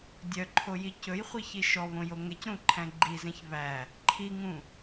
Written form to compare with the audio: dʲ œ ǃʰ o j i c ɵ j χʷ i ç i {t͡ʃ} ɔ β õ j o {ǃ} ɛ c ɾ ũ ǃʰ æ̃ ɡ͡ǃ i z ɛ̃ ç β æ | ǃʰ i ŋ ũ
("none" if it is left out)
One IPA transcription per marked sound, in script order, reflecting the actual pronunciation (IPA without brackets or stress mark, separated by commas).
ʃ, ŋ